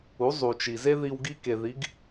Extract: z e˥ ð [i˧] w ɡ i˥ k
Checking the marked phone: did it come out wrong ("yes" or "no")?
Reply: no